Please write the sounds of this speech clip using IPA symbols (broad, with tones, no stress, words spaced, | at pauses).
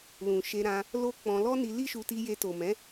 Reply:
lũ˨ʃe˧ ɾã˧ | lo˦k͡pɔ̃˧ lɔ˦ni˧li˦ʃu˧ ti˧je˧to˨mɛ̃˨˦